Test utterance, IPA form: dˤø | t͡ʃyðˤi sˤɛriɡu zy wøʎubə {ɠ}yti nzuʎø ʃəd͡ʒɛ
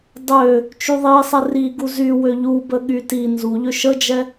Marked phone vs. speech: correct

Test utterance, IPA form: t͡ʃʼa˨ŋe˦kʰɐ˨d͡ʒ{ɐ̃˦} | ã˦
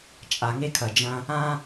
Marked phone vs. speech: correct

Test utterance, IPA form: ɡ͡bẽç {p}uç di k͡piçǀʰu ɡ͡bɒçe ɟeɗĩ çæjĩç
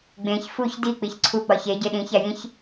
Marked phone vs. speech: incorrect: f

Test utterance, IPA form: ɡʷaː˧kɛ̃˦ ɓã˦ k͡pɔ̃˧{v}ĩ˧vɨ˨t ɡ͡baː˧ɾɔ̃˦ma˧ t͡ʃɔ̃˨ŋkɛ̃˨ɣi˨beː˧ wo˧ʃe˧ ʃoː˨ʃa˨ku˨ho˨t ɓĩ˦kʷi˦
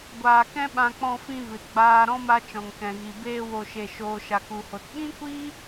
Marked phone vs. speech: incorrect: f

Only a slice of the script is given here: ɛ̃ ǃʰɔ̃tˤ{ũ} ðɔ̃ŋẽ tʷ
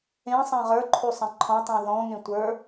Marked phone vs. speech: correct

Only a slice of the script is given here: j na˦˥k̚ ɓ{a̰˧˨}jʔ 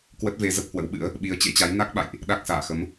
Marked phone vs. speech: correct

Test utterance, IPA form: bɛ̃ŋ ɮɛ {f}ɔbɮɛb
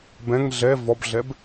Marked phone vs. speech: incorrect: v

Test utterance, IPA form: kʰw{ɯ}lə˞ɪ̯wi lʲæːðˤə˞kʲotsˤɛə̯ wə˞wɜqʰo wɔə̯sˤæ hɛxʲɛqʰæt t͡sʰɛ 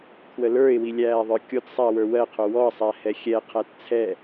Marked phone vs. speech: incorrect: ə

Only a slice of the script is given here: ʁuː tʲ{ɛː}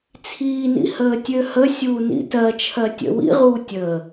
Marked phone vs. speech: incorrect: əː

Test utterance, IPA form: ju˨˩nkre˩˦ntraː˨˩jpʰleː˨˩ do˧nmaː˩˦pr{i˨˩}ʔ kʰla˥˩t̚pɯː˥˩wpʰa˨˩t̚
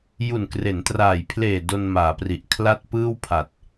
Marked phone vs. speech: correct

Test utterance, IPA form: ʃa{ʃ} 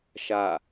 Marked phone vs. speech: incorrect: none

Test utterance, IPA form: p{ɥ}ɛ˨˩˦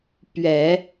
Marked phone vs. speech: correct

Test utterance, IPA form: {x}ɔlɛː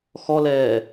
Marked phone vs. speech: correct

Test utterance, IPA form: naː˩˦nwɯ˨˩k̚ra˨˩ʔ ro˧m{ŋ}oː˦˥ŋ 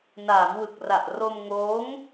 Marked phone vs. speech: correct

